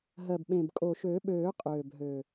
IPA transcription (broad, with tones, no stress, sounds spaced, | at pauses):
ɦ ɜ˨˩ b ɓ ẽ˨˩ b kʼ o˨˩ ʃ ø˨˩˦ ɓ øː˨˩˦ qʼ øː˨˩ b ɦ ø˨˩